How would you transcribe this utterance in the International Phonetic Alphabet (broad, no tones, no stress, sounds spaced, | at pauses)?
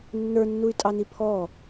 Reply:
nː ə˞ nː u y̯ tʼ ɑ n i pʰ ɔ